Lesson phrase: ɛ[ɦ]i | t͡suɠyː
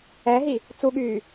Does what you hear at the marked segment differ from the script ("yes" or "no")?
no